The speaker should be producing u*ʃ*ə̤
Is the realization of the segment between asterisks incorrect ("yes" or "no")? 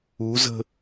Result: yes